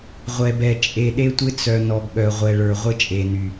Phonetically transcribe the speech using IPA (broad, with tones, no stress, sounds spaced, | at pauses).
ʁʷ ɛ˨ b ɛ˨ t͡ʃʼ e˨ ɗ e˦ tʷ ɪ˦ t͡s œ˨ n ɔ˨ ɡ ɠ œ˨ ʁʷ ɛ˨ ɭ ə˞˨ ʁʷ ɪ˦ t͡ʃʼ e˨ n y˨